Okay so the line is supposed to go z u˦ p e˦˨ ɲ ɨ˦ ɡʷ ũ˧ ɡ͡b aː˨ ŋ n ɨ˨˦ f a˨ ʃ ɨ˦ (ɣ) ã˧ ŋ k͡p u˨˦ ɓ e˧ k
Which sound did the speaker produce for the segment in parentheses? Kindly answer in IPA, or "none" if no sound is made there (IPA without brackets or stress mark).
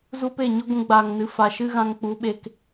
ɣ